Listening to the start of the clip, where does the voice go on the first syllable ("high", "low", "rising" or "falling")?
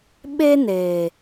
high